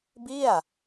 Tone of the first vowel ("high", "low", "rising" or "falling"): falling